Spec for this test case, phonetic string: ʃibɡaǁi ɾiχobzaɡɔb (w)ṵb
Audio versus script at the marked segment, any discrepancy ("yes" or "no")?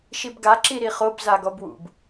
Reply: no